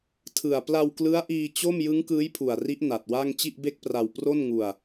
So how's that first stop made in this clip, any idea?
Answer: aspirated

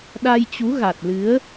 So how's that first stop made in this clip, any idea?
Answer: implosive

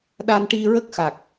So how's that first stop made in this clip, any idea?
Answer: implosive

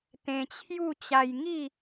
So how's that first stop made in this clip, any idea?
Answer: plain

